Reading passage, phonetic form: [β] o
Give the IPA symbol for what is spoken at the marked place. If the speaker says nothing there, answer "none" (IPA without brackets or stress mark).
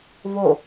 β